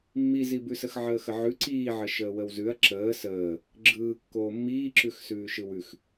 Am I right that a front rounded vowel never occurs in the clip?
yes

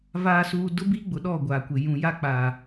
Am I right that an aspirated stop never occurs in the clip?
yes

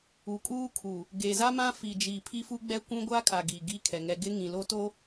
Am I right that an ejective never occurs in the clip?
no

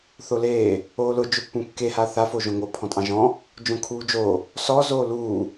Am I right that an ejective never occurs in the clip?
no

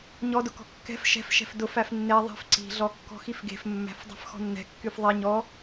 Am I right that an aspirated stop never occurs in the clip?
yes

